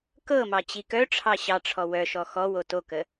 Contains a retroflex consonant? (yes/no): yes